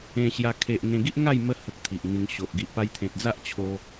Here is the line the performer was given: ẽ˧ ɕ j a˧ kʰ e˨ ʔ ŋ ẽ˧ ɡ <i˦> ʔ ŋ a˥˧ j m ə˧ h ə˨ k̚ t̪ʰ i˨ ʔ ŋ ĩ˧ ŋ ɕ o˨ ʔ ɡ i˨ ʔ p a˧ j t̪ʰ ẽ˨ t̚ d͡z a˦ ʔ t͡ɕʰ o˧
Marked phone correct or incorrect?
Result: correct